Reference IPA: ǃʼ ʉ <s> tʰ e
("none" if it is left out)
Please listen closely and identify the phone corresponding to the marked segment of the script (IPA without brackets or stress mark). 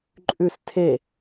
s